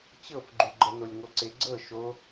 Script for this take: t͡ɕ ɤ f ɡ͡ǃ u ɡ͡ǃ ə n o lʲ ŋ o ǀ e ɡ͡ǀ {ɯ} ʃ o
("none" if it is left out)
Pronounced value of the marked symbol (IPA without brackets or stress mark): ɤ